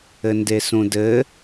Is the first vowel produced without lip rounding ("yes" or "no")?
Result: yes